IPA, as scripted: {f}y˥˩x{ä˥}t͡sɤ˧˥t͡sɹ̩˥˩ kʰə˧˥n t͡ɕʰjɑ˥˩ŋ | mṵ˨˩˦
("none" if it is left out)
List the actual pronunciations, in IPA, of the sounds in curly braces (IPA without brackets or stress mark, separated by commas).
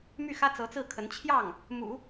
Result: m, ä˥